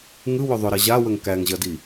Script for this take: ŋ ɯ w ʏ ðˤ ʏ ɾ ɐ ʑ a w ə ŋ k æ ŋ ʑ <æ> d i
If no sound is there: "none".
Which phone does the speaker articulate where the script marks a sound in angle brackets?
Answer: ɐ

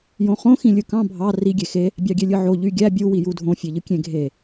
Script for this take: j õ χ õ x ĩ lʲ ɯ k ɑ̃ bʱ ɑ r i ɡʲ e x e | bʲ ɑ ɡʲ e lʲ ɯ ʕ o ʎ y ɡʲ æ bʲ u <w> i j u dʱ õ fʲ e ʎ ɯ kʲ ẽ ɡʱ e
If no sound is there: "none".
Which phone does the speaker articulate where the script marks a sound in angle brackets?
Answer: w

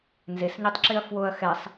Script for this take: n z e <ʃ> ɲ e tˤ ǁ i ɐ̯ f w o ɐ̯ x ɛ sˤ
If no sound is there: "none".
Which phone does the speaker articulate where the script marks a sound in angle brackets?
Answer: s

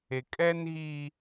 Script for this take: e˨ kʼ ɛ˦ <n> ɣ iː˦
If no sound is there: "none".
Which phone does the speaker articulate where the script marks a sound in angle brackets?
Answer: n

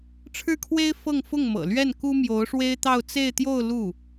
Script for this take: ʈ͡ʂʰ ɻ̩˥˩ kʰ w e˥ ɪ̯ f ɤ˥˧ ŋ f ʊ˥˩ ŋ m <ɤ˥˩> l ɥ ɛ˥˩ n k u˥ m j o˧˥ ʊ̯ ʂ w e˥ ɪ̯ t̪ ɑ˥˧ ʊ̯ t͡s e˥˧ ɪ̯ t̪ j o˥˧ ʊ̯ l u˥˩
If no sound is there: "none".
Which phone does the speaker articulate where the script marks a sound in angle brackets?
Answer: ɤ̰˨˩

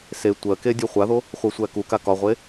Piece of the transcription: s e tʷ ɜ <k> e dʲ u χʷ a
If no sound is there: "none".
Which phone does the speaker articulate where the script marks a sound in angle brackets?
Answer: k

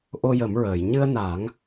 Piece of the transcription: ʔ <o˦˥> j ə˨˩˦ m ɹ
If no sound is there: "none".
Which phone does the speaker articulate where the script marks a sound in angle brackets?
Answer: o˧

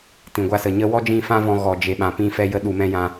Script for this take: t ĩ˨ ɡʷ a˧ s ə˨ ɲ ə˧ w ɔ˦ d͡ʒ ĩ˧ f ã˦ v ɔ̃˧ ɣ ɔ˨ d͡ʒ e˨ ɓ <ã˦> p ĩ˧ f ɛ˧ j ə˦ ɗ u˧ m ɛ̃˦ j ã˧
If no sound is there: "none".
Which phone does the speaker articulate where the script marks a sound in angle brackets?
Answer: ã˨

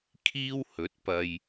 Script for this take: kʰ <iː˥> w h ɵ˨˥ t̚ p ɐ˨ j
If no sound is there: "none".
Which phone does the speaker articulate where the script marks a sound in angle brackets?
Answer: iː˥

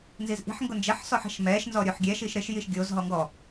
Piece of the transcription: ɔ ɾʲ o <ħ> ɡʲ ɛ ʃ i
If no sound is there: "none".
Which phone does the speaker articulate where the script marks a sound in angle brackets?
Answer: ħ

